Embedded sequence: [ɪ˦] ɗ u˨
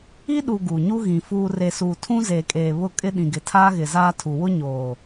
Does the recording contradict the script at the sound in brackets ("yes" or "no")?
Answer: yes